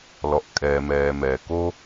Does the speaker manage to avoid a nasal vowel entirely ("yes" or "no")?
yes